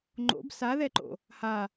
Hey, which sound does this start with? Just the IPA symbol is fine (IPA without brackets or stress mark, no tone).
ŋ͡ǃ